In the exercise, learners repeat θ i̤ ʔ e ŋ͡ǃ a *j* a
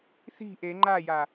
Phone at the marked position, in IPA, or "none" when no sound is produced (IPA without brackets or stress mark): j